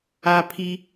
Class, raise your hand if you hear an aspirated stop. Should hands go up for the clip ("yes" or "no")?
yes